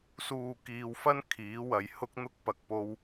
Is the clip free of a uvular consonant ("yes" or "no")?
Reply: yes